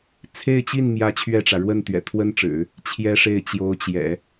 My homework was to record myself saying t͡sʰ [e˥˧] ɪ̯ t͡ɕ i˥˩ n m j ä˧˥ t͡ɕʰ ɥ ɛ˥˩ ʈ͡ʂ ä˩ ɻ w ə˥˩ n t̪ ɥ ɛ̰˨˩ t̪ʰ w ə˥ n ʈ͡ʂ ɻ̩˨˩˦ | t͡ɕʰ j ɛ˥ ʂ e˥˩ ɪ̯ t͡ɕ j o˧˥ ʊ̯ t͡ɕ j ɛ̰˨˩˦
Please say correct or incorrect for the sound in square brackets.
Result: correct